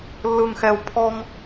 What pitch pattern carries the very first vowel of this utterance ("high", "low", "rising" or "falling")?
low